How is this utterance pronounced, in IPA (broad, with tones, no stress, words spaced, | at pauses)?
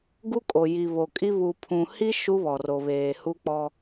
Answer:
ɡu˦kʼo˨ ji˨ βo˨kʼi˦ βu˨pʰũ˨hi˦ ʃu˦βɔ˨ ro˨βeː˨ hu˦k͡pɔ˦